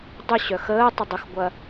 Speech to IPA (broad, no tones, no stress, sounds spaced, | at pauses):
dˤ ʊ ɕ œ x əː tˤ ə dˤ ɪ x ɡʷ ɐ